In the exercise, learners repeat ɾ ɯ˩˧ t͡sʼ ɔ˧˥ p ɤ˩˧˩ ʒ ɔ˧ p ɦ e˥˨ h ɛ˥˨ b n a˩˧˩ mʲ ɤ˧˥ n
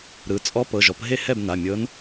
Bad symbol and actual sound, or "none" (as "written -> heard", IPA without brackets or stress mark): none